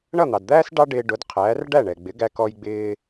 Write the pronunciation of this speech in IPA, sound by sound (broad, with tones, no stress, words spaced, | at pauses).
ɳʌ˥˩n̪ɑ˩dd̪æː˥s ɖɑ˥ɖɪː˧ɖʊ˩˥dqʰæː˩˥r ɖæ˥˩ɳɛ˩ɡ͡bɪ˩˥ɡæ˧ kɔ˧jɡ͡bɪː˧